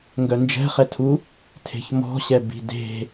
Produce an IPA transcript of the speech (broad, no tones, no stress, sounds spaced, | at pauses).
ŋ ɡ œ n d͡ʒ ɛ̤ χ ɛ tʰ u | tʰ e̤ ç m ɔ̤ ɕ ɛ b i̤ d e̤